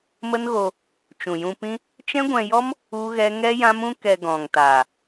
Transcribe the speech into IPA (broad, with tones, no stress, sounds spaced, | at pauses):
m ə˦ n ɣ o˧ | t͡ʃ ũ˨ j ũ˧ p ĩ˦ | t͡ʃ ɛ̃˦ ɡʷ ɛ̃˧ j ɔ˦ m | u˦ ɣ ɛ˦ ŋ ɛ˦ j ã˦ m ũ˦ k ɛ˧ ɡ ɔ̃˨ ŋ t aː˨